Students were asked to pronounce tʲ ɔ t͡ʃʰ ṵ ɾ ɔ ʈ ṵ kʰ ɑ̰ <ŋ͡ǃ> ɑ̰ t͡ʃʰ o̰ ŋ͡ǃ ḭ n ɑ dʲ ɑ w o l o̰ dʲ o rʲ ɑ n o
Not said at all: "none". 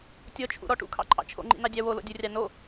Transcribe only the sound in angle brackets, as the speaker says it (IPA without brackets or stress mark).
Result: ǃʼ